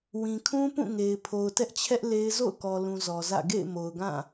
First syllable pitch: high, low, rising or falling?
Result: low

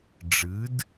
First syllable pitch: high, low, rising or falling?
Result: rising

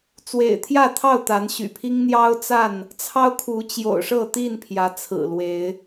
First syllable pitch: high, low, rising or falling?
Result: low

